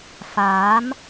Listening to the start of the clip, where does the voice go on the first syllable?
rising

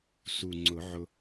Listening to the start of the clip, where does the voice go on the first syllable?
low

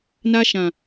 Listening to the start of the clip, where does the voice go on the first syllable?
high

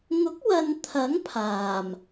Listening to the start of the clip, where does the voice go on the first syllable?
rising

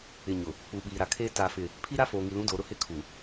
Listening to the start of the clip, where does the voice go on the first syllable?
low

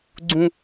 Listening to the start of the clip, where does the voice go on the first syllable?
high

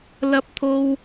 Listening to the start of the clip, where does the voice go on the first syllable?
high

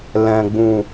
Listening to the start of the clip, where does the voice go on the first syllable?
low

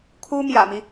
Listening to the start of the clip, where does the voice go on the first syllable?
high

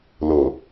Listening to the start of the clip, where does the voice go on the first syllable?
low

